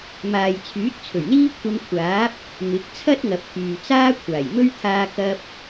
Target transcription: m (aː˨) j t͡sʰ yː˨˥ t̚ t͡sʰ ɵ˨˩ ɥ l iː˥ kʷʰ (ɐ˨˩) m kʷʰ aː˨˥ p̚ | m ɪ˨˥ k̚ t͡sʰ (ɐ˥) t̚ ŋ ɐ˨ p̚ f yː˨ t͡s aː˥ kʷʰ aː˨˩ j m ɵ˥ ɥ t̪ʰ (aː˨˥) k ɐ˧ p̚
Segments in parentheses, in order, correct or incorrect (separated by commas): correct, incorrect, correct, incorrect